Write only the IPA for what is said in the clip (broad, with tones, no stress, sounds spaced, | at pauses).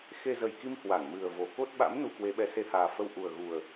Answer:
x e˧ z ə˨˩ j k i˧ m h w a˧˩ ŋ m ɨ˨˩ ə̯ v o˨˩ k o˦˥ t̚ ɓ a̰˧˥ m n u˧ k w e˨˦ ɓ ɛ˨˦ s e˧ h aː˨˩ f ə˧ w ʔ u˨˩ ə̯ ɣ u˨˩ ə̯